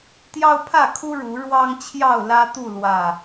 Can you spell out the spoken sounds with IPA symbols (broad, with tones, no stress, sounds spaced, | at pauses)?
t̪ j ɑ˦ ʊ̯ pʰ ä˥˨ kʰ u˦ ɻ u˨˦ ɻ w ɑ˦ ŋ t͡ɕʰ j ɑ˥˨ ʊ̯ l ä˦ t̪ u˥˨ l w ä˥˨